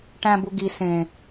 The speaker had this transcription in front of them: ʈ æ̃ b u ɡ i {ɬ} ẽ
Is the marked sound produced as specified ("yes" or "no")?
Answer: no